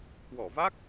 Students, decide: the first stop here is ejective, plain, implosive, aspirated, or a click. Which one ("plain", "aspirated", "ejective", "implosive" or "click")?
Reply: plain